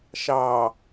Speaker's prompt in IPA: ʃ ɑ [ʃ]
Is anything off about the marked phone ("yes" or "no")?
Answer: yes